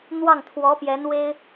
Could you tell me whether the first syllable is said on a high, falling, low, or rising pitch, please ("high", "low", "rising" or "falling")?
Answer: falling